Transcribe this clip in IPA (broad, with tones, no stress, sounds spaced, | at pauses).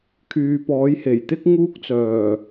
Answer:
kʰ yː˨ p ɔː˨˥ j h e˨˩ j t̪ ɪ˥ k̚ ŋ uː˥ k̚ t͡s œː˨˩